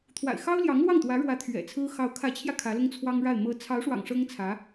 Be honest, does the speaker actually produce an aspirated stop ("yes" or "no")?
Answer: yes